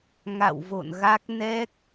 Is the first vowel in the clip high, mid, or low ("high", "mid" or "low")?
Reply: low